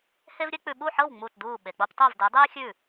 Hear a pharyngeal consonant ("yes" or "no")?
yes